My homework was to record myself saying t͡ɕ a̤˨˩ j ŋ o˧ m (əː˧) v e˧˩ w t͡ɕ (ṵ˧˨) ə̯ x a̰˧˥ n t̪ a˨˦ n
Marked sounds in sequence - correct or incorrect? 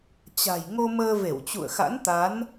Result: correct, correct

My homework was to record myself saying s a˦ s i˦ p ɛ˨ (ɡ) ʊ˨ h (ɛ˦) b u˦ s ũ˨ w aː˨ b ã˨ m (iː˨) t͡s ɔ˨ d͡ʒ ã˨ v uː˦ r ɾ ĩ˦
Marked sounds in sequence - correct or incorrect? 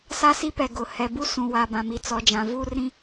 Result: correct, incorrect: ɛ˨, incorrect: i˨

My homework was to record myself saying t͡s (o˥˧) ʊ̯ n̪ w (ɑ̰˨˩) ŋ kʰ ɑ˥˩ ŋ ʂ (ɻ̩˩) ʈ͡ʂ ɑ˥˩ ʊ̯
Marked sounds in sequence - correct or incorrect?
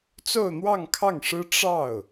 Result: correct, incorrect: ɑ˥˧, incorrect: ɻ̩˥

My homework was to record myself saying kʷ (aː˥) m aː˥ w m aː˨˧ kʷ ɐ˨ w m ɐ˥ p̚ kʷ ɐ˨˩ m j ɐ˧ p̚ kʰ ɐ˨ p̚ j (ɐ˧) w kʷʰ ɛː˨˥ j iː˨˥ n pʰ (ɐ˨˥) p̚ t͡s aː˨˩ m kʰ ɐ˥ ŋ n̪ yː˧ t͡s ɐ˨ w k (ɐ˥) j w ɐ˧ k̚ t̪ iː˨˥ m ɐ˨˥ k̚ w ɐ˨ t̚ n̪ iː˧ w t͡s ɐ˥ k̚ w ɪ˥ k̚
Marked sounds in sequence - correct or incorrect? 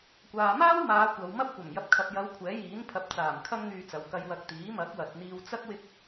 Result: incorrect: aː˨, incorrect: ɐ˨˧, correct, incorrect: ɐ˧

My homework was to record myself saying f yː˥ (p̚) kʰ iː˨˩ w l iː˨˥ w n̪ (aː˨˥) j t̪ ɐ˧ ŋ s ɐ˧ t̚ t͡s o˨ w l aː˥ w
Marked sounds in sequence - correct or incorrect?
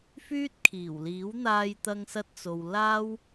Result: incorrect: t̚, incorrect: aː˧

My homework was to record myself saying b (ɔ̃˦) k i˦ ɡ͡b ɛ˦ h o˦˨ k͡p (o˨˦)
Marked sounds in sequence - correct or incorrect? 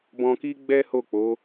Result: incorrect: ɔ̃˧, correct

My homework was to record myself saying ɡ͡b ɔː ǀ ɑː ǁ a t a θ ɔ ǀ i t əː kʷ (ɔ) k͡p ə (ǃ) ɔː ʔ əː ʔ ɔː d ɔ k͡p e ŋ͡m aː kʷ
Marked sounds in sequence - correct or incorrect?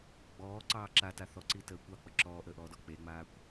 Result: incorrect: ɑ, incorrect: ǁ

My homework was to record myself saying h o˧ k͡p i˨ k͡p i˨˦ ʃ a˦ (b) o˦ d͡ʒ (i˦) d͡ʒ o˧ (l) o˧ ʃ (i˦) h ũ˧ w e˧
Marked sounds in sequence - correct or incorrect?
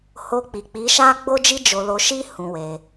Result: incorrect: ɡ͡b, correct, correct, correct

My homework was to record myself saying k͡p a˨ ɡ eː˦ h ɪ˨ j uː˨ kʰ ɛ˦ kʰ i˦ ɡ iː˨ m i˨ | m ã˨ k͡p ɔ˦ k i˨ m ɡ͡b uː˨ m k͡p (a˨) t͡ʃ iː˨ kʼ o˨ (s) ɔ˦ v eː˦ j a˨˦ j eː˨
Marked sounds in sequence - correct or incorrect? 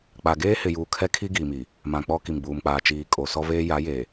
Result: incorrect: aː˨, correct

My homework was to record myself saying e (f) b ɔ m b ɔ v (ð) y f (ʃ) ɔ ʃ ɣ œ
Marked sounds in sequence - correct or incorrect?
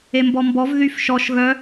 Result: incorrect: m, correct, correct

